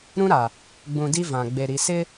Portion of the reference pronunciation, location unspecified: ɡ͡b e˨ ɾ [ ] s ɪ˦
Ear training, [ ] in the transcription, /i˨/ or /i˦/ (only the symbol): i˨